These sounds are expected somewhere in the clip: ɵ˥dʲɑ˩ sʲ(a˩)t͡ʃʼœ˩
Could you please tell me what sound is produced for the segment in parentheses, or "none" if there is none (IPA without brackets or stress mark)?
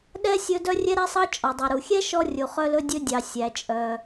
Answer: æ˩